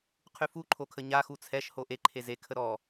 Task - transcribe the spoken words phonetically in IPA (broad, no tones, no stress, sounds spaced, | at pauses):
qʰ y f u ǃʰ o kʰ ə ɲ a x u t͡sʰ ɛ ʃ h o ʔ e ǃʰ e z e kʰ ə ɾ ɔ